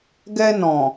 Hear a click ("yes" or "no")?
no